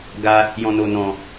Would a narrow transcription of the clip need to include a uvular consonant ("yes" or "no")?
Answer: no